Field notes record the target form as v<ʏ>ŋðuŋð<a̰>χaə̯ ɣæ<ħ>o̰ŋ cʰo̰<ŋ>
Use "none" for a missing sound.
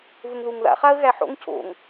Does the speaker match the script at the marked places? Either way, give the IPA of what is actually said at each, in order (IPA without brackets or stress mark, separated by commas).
ʏ, a̰, ħ, ŋ